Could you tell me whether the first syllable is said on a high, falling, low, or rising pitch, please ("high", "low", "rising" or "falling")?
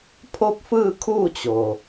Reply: falling